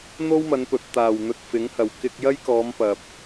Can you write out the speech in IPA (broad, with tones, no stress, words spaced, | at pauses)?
n̪o˥wmɐ˨˧npɵ˨t̚ t̪aː˨˩w n̪ɵ˧t̚fɪ˨˥ŋhɐ˨w kɪ˧k̚ jɐ˥jkɔː˨˧m pɐ˨p̚